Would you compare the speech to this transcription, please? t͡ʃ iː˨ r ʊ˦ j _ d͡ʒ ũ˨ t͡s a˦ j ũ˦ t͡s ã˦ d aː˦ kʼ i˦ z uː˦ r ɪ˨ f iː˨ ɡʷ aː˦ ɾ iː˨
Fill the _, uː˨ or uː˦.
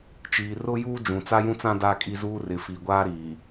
uː˦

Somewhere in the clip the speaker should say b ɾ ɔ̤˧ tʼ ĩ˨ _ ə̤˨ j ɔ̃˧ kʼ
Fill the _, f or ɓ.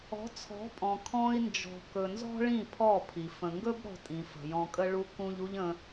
f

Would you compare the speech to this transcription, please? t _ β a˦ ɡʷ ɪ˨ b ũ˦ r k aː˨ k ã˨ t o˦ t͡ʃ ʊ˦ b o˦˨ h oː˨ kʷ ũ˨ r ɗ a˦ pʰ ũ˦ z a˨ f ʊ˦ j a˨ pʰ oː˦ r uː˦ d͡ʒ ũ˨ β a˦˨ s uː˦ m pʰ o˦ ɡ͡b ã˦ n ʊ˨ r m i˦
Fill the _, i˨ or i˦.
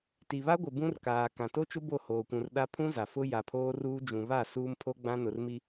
i˨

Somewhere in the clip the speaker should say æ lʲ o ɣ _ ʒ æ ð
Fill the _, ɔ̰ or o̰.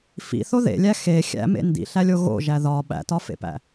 o̰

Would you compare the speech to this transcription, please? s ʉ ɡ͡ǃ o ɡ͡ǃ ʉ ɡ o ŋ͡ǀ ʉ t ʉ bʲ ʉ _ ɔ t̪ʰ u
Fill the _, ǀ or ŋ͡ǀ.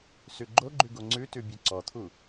ǀ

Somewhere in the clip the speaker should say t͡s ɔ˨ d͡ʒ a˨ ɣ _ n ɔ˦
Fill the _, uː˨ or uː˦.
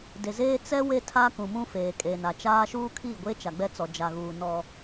uː˨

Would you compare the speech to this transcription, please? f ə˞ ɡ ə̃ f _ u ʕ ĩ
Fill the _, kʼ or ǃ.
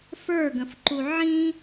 ǃ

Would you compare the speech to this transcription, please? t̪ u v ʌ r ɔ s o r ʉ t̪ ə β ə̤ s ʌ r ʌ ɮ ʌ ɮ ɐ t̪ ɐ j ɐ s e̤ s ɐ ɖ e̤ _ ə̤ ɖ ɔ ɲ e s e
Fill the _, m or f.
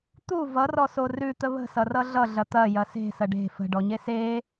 f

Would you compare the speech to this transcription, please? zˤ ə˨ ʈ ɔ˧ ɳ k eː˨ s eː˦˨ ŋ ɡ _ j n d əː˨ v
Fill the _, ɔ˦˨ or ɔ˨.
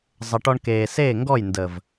ɔ˦˨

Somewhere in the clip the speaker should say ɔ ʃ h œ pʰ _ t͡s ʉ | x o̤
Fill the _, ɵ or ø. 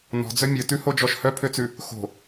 ø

